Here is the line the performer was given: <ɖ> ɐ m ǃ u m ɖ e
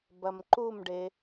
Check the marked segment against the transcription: incorrect: b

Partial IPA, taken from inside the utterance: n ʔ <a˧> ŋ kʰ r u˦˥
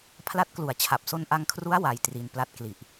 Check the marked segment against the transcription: correct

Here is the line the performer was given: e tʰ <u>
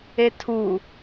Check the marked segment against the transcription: correct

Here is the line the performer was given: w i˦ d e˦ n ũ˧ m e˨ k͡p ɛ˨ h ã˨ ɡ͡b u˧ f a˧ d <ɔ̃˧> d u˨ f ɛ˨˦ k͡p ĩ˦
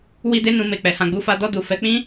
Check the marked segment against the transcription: incorrect: ɔ˧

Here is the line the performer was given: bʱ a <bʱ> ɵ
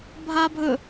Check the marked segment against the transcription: correct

